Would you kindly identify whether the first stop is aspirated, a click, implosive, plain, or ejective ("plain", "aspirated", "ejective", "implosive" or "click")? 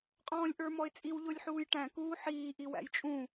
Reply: ejective